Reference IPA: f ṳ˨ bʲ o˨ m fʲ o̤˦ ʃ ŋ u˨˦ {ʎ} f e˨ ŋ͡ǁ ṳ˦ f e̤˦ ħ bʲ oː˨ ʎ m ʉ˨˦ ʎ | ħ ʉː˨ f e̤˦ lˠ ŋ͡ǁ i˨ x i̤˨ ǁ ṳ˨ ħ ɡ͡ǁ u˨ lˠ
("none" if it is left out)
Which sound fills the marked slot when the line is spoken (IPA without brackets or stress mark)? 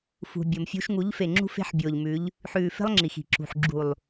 ʎ